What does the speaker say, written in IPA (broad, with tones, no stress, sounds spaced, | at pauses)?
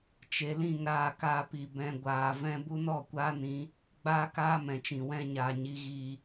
t͡ʃ e˨˦ l ĩ˦˨ ŋ ɾ aː˦˨ k aː˧ p i˨ b ɛ̃˨ ɡʷ aː˨ v ɛ̃˧ b u˧ n ɔ˦˨ kʷ aː˦ n ĩ˨˦ | ɡ͡b aː˦ k aː˦ m ɛ̃˨ t͡ʃ ĩ˨ w ɛ̃˧ ɲ aː˨ ɲ i˨ ɣ iː˨